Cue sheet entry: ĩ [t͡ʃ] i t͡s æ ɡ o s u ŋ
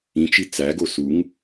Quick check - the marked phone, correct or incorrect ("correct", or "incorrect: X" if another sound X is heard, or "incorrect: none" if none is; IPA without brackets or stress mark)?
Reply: correct